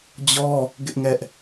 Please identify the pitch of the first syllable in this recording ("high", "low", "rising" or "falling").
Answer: high